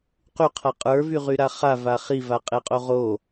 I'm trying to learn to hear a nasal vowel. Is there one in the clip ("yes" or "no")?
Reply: no